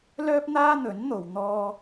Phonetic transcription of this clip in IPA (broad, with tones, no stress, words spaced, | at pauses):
lœː˥p̚n̪aː˥n̪ɵ˨˥nn̪o˨w n̪ɔː˥